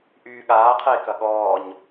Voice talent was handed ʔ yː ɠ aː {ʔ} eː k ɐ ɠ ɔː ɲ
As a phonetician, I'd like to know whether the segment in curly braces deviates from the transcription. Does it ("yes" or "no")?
yes